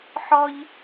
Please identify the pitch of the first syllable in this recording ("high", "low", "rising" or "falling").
high